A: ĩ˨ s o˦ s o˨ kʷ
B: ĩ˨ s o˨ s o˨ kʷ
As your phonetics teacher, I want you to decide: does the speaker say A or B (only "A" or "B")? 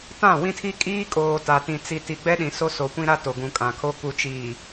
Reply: A